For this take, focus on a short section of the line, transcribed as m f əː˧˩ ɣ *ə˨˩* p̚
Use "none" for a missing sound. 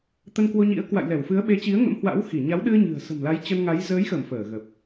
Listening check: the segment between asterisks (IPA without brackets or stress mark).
ə˨˩